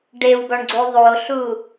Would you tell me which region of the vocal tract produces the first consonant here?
retroflex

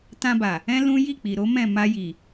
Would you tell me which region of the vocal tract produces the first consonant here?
tongue tip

